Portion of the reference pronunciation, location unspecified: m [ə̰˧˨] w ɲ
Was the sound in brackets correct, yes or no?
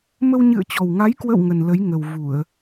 no